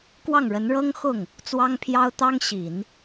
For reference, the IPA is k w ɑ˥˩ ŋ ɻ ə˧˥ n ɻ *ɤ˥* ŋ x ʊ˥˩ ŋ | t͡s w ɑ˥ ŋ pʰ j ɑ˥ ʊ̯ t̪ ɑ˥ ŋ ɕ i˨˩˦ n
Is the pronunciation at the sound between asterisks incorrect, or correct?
correct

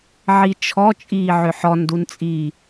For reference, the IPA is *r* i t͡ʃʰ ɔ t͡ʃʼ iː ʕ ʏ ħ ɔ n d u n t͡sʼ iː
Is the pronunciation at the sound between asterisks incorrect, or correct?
incorrect: ʕ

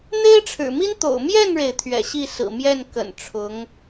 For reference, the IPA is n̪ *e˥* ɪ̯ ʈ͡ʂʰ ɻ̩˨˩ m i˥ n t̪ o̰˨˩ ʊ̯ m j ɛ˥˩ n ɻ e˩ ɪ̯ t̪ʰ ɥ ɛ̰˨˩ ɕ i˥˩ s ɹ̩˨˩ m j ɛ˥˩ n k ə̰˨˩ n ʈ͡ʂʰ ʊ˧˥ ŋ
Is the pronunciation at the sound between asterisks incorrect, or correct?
correct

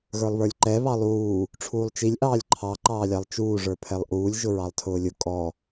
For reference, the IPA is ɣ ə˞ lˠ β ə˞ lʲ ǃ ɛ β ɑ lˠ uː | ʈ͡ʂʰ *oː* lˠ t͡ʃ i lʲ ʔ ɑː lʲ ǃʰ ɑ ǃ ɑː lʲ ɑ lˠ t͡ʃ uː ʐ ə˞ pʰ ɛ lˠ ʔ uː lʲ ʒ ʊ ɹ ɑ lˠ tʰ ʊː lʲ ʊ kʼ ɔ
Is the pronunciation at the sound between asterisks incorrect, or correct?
incorrect: uː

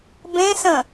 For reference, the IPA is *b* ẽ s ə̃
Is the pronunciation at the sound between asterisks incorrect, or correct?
correct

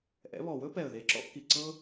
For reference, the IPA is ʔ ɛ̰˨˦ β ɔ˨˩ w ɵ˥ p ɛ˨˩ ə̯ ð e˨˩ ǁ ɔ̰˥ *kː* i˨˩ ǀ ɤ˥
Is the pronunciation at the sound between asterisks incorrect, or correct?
correct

